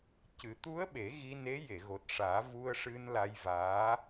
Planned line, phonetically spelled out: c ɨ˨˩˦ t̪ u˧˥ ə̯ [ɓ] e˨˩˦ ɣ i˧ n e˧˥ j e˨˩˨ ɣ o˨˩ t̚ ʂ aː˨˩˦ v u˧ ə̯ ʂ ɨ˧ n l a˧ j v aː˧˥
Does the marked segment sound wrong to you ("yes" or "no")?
no